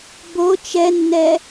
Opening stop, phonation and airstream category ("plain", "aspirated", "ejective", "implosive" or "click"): plain